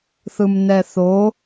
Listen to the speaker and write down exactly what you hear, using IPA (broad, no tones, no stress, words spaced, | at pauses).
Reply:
θɯmnɛθo